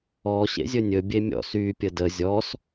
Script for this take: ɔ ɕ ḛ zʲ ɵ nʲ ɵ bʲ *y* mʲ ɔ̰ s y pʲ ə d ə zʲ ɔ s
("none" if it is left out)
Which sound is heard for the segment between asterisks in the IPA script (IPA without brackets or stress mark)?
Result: e